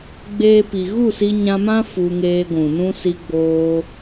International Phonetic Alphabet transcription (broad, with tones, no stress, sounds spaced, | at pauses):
ɡ͡b eː˦ p i˧ ɣ u˦˨ s i˧ ɲ ã˧ m ã˦ f u˧ ŋ eː˧ ɡʷ ũ˨ n ũ˦ s i˧ ɡ͡b oː˧